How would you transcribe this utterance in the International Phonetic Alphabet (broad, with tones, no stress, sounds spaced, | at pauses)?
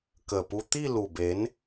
k ə˨˩ p u˧ t̪ i˥˧ l u˨˩ b e˨˦ n